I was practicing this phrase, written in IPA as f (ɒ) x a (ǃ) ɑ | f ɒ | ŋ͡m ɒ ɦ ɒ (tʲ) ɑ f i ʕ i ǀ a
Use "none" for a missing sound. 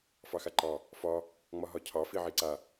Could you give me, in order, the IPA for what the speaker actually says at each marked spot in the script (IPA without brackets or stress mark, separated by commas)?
ɑ, ǃ, cʰ